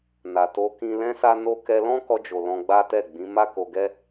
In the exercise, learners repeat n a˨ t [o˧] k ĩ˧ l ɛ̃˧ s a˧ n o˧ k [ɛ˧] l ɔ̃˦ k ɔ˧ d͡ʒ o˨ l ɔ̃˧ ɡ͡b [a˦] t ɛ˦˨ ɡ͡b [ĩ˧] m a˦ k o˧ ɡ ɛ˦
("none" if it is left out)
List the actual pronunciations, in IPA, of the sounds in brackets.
o˧, ɛ˧, a˦, ĩ˨˦

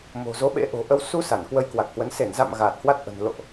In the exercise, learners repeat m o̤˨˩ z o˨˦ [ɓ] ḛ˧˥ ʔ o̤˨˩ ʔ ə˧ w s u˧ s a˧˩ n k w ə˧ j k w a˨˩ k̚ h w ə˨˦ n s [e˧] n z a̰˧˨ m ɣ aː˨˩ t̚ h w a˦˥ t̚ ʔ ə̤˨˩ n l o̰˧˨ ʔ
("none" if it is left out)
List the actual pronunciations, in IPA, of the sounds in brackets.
ɓ, e˧˩

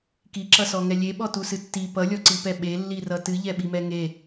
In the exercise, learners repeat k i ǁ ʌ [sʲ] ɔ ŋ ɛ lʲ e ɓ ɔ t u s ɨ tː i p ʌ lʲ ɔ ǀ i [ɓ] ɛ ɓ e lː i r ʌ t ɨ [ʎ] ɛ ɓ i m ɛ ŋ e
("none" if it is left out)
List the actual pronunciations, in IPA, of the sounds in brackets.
s, p, ʎ

